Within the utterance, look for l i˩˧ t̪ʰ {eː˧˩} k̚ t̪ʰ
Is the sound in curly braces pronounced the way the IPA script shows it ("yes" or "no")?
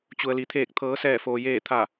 yes